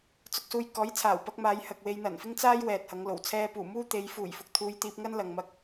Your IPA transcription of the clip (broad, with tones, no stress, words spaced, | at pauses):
t͡sʊ˧k̚suː˧j kɔː˨˥jt͡sʰaː˨˩wpɐ˧k̚ maː˨˧j hɐ˨k̚we˧j n̪ɐ˨˩nfɪ˥ŋt͡saː˥j wɛː˨t̚hɐ˨˧ŋlo˨˩w t͡sʰɛː˧puː˨˩muː˥ t̪e˨˧j fuː˨˩jfʊ˨k̚ t̪ʰuː˧j t̪iː˧p̚ ŋɐ˥n lɐ˨ŋmɐ˧k̚